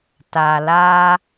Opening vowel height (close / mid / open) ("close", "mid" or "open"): open